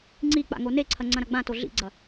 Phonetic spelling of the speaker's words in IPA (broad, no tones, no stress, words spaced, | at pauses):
ŋ͡ǀik͡pa̰ ŋoneǀʰɐ ŋ͡ǀɐ̃ɾɐɡ͡bãto ɮḭɡ͡ǀɐ